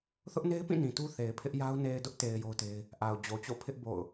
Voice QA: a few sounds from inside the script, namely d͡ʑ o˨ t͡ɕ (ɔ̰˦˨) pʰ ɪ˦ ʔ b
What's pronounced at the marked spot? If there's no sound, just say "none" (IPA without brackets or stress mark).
o̰˦˨